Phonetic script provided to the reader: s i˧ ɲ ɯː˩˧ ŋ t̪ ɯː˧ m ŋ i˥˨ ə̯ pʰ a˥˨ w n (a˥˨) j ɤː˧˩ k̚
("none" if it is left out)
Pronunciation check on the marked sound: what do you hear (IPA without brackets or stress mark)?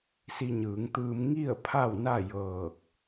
a˥˨